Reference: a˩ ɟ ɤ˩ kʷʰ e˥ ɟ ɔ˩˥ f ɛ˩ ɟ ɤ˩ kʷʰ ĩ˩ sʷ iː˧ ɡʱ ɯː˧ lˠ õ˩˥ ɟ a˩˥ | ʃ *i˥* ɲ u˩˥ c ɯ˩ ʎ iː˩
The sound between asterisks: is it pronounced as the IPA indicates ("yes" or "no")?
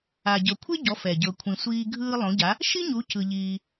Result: yes